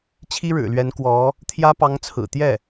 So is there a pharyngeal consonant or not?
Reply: no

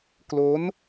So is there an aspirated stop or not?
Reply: no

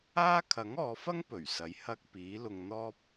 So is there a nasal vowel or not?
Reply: no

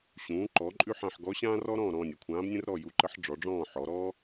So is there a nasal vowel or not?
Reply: yes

